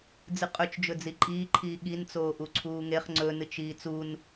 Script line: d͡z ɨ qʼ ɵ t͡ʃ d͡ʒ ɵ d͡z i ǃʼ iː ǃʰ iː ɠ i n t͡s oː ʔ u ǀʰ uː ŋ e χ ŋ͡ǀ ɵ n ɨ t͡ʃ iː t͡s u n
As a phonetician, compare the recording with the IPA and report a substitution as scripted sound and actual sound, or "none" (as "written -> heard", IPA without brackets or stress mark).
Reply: none